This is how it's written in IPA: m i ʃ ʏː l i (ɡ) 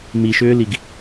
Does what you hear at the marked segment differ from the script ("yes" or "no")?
no